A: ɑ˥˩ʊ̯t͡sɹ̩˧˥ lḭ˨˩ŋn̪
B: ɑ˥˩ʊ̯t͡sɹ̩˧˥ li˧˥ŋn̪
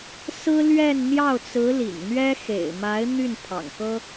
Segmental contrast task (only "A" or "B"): A